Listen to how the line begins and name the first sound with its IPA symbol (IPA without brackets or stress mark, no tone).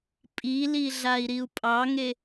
pʼ